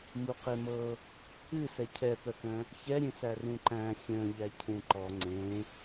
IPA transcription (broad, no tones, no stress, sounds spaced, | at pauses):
m u q e m ɤ | ɨ s ɛ cʰ ɛ p œ k œ̃ | ç ɛ ɾʲ ẽ s æ r ũ ǃ æ̃ xʲ œ̃ ʎ æ cʰ ẽ ǃ ɔ ŋ͡ǀ ẽ